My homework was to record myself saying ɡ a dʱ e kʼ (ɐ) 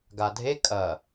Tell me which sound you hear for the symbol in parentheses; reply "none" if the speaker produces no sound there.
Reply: ɐ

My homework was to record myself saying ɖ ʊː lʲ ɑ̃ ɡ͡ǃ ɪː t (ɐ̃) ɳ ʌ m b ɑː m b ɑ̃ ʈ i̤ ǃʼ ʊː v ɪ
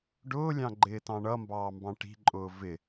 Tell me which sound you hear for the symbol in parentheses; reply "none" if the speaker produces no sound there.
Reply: ɑ̃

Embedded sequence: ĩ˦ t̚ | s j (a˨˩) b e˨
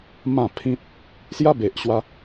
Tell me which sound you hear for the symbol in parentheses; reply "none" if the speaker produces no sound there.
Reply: a˦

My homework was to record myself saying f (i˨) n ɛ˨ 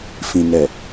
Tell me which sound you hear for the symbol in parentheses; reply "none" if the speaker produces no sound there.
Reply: ĩ˨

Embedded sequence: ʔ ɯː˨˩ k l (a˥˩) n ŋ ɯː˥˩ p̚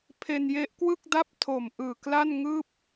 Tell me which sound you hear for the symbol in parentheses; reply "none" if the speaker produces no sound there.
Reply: a˥˩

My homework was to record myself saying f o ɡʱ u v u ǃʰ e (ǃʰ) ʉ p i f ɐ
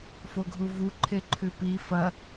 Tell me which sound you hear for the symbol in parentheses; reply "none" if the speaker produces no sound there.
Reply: ǃʰ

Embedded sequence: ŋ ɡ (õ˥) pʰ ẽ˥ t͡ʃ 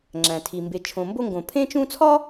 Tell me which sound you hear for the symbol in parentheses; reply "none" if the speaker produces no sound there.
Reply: õ˨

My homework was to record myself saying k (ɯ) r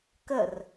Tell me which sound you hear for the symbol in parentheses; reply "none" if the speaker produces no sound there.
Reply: ə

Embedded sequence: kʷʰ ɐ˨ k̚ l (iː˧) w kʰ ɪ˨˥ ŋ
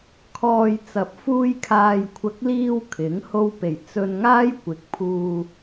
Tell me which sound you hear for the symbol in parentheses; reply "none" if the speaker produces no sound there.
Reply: iː˧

